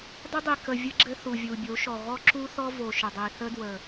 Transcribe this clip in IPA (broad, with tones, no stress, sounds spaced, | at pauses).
dˤ ɘ˦ dˤ i˨ k ə˨ vʲ ə˦ ɡ͡ǁ ɘ˦ θ u˨ vʲ u˨ bʲ o˨˦ ʃ ɔ˨ ɣ ɔ˦ ǁ u˦ θ ɔ˦ v o˨ ʃ ə˨ dˤ i˨ θ ə˦ d w ə˨